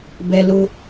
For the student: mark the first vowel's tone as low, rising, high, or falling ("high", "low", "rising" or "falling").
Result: high